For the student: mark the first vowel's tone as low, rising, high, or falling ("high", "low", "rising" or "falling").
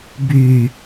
low